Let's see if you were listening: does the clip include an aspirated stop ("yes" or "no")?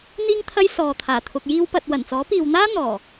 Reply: yes